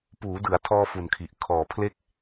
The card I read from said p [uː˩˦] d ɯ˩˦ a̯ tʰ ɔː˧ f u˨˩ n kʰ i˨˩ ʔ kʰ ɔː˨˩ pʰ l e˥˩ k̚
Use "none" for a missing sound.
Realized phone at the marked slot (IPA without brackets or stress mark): uː˩˦